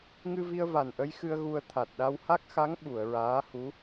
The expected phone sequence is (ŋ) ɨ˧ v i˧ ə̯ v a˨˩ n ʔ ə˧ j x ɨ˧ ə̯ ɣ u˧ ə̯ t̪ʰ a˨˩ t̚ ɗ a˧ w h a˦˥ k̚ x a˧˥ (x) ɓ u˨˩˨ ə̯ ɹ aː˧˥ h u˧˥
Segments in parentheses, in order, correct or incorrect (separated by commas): correct, incorrect